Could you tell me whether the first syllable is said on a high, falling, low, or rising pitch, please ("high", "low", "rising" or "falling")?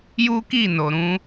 high